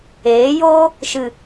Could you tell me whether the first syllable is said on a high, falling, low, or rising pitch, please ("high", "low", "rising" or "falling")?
rising